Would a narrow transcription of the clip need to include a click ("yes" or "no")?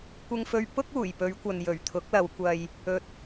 no